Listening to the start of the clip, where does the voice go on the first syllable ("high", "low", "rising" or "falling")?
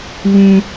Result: high